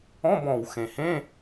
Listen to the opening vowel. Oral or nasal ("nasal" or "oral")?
nasal